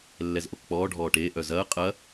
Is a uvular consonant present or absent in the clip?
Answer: present